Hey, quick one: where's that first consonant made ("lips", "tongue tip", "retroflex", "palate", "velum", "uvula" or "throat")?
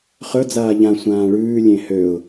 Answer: uvula